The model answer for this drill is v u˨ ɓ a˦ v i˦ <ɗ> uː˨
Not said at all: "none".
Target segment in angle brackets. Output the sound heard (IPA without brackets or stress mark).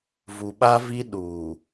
ɗ